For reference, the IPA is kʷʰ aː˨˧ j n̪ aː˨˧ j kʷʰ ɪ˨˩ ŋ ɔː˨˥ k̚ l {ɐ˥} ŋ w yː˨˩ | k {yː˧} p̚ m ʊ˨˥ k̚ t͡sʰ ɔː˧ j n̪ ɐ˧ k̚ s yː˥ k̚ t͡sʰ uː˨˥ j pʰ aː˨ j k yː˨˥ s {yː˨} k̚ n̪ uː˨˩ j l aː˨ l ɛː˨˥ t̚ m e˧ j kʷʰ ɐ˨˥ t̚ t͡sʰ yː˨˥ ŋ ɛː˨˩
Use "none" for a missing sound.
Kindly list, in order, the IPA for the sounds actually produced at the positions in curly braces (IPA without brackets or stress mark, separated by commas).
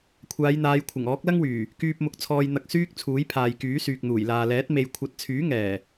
ɐ˥, yː˧, yː˨